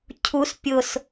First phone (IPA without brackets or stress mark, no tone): cʰ